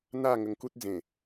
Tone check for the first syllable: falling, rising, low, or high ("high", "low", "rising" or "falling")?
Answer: falling